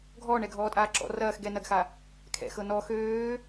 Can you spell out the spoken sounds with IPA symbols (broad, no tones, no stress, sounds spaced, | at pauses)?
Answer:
ɡʱ ɔː ɳ ɛ ɡʱ ɔː tʼ aː ǁ ɔ̰ r ɐː x ɡ ɛ n ɐ ɡ x a | kʰ ɛ̰ x ɤ n ɔ x øː